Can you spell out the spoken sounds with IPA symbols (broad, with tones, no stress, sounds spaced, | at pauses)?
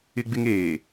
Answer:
ɪ˦ ɡ͡b ɪ˦ ŋ eː˨